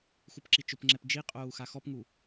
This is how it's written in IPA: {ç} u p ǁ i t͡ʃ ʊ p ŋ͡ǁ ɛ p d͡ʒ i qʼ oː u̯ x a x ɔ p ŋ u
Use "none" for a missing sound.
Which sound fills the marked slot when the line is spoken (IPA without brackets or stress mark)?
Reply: x